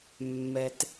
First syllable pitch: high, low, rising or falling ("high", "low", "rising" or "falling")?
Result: low